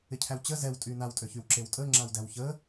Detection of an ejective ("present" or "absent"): present